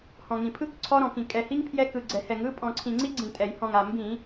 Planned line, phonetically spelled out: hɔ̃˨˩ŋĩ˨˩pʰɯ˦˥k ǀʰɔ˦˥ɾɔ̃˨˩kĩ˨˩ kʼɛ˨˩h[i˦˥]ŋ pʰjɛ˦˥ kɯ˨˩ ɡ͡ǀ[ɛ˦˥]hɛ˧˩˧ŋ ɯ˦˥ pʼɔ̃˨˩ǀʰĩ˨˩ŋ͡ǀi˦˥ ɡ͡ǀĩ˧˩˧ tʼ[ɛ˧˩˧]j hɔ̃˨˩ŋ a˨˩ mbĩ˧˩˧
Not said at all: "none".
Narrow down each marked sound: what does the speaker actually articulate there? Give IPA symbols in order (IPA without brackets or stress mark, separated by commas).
i˦˥, ɛ˨˩, ɛ˧˩˧